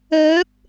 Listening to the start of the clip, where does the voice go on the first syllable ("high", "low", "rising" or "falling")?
rising